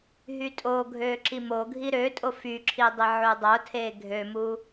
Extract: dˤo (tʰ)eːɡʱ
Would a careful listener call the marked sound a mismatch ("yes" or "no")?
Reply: no